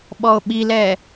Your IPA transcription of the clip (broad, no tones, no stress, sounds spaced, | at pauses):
ɓ ɔ o̯ ɓ i l ɛ